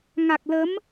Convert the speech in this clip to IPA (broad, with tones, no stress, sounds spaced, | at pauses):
ŋ a˨˩ k̚ l ə˨˦ m